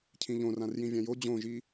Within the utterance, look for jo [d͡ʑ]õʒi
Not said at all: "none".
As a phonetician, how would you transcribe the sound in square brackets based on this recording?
d͡ʑ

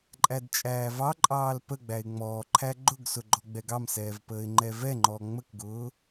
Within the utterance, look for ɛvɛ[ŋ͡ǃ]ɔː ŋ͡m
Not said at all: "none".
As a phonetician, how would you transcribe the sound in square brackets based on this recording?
ŋ͡ǃ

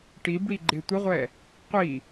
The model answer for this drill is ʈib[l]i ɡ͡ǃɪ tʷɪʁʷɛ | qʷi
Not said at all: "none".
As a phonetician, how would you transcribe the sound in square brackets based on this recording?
ɽ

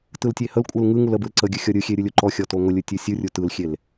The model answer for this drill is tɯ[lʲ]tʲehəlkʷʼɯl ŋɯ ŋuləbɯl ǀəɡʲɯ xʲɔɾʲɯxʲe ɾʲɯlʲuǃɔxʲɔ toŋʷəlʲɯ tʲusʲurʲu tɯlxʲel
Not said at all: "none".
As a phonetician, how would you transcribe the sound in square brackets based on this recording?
l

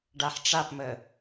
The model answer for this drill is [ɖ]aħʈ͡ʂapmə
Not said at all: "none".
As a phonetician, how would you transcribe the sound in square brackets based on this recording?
ɖ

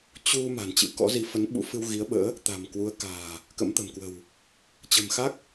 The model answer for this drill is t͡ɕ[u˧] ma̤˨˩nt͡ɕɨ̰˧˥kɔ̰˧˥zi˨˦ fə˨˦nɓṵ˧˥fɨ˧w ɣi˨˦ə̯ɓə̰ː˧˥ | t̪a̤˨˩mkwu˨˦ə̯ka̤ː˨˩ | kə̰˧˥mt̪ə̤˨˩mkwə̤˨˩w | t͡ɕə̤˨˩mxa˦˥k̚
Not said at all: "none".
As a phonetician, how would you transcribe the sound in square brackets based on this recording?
u˧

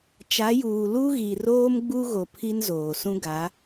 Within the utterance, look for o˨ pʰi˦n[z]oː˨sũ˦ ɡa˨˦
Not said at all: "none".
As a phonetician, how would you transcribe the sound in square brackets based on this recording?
z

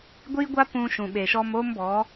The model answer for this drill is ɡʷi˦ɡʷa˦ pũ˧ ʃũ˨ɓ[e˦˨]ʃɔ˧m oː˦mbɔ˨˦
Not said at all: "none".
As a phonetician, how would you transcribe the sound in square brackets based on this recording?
e˨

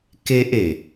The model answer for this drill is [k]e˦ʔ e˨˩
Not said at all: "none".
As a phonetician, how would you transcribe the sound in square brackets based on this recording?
k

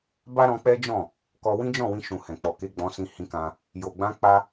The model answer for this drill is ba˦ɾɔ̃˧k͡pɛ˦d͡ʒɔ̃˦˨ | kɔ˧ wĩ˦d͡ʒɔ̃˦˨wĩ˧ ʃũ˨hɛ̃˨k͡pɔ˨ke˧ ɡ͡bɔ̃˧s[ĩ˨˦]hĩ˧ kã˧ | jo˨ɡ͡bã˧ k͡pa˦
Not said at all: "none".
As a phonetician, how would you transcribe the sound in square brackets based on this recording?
ĩ˧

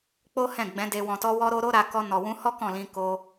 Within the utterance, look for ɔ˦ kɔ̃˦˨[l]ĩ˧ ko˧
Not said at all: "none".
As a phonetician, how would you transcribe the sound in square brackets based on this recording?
l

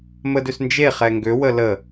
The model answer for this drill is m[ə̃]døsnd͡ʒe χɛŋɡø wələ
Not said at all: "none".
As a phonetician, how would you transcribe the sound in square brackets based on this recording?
ə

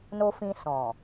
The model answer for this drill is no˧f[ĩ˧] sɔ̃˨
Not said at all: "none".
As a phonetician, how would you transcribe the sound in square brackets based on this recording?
ĩ˧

